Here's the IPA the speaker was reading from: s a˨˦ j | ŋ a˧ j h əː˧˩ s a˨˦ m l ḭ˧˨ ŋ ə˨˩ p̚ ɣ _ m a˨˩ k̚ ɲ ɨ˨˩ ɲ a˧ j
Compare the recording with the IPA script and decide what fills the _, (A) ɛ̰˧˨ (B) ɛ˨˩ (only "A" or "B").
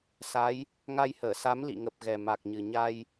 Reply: B